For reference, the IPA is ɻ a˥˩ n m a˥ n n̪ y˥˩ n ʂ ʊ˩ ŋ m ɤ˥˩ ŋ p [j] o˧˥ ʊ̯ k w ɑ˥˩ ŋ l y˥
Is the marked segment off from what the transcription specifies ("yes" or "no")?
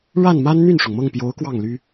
no